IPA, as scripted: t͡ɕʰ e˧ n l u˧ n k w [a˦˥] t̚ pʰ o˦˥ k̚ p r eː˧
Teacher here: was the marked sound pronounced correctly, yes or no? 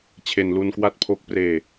yes